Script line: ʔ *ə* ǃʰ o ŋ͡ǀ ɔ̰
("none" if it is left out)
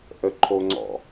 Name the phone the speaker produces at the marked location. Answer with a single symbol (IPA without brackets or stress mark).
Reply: ə